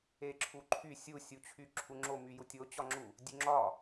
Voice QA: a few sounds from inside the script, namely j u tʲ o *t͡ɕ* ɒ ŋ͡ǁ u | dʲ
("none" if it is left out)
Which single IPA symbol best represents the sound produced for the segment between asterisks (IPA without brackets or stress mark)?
t͡ɕ